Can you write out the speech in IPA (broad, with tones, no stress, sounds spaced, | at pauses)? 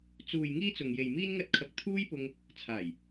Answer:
t͡s uː˨ j ŋ iː˥ t͡s ʊ˨ ŋ j e˨ j m iː˥ n ŋ ɐ˥ t̚ kʰ ɐ˧ k̚ t̪ʰ uː˥ j p ʊ˧ ŋ | t͡sʰ aː˨˩ j